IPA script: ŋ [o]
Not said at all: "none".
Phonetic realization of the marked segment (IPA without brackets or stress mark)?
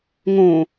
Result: õ